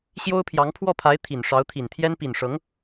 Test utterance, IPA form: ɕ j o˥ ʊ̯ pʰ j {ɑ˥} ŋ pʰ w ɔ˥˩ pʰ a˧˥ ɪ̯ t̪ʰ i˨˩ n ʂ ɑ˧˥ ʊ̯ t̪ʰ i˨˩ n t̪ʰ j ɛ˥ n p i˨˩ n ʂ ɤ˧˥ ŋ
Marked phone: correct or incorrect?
incorrect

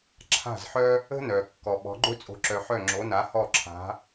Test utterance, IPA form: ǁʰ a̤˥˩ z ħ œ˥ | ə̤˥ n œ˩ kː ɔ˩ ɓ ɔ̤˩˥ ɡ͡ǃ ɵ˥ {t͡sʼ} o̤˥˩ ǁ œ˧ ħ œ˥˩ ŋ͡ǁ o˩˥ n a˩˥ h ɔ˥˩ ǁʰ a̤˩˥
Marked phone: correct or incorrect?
correct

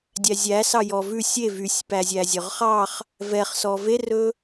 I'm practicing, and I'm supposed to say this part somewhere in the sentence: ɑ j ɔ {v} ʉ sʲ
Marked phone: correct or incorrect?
correct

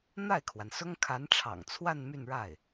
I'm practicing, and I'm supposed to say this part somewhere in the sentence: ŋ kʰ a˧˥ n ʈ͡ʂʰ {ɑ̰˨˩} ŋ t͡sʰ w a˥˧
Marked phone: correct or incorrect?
correct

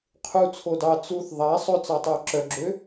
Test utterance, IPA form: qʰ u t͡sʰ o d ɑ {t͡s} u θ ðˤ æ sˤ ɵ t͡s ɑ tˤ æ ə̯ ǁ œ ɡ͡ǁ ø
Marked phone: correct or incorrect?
correct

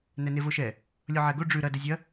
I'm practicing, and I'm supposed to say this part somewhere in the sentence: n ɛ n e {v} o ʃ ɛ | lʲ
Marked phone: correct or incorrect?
correct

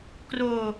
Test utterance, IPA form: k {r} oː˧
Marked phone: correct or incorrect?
correct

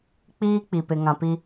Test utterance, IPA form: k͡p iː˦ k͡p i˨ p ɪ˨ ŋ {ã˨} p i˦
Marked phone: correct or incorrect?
correct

